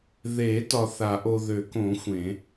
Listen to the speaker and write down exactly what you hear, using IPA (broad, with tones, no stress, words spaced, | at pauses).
ðe˨˩˦ tɒ˨θa˨˩˦ʔo˨ ðø˨˩˦kõ˨˩˦ xʷẽ˨˩˦